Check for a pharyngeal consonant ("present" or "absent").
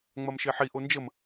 present